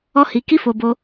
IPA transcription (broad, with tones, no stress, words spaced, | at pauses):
ɔ˦hi˧ki˦fo˧ bo˧